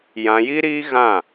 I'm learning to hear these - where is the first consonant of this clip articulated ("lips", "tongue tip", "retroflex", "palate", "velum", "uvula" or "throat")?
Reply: palate